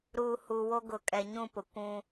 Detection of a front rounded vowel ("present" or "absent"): absent